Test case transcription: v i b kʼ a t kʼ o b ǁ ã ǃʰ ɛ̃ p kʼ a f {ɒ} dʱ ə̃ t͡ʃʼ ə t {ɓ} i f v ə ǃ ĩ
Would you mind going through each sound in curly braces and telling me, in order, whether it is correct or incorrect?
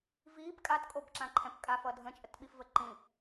incorrect: ʌ, correct

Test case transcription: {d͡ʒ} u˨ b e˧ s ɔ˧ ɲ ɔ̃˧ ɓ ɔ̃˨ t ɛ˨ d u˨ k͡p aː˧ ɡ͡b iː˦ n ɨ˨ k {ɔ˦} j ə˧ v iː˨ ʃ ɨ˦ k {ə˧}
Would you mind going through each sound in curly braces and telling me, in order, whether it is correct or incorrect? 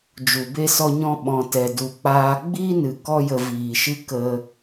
correct, correct, correct

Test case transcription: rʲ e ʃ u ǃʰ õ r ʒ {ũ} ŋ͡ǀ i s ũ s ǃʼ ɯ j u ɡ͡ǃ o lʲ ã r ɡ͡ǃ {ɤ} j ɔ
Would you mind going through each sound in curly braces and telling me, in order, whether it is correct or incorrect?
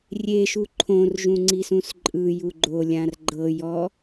correct, correct

